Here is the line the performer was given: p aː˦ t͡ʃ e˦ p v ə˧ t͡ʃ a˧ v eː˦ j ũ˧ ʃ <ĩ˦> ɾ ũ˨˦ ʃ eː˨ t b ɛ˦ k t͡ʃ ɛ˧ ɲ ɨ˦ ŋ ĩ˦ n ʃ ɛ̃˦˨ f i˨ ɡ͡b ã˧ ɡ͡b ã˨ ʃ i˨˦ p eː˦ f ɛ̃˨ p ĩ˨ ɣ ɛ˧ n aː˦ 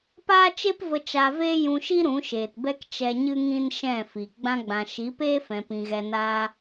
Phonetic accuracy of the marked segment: incorrect: i˦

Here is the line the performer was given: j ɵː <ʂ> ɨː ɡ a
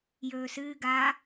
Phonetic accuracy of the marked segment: incorrect: s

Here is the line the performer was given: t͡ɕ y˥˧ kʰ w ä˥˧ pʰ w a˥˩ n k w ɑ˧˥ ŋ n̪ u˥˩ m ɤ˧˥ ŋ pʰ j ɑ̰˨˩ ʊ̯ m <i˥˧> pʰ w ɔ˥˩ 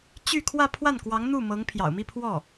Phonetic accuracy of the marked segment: correct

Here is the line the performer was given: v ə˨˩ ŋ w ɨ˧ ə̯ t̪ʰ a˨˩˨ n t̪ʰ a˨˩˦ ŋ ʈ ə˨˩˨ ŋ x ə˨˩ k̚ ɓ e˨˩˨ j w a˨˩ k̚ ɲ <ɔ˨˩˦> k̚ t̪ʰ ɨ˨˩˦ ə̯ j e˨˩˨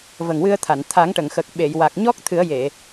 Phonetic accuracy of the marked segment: incorrect: ɔ˦˥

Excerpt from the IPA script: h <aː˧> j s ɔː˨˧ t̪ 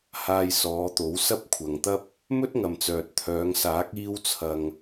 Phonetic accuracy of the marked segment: correct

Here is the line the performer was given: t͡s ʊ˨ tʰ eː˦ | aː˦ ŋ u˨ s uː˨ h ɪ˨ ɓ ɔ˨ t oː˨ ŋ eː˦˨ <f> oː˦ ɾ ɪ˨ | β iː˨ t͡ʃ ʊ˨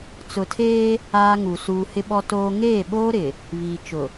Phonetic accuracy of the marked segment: incorrect: ɓ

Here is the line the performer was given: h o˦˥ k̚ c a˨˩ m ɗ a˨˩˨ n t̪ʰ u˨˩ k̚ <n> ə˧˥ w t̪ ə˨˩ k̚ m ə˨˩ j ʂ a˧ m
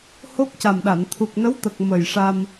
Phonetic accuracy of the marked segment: correct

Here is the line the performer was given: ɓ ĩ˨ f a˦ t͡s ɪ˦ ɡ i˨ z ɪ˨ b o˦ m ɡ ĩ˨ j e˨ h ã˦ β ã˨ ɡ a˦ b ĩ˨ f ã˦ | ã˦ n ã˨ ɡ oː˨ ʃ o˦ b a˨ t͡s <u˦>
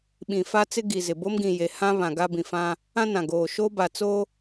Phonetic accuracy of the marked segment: incorrect: o˦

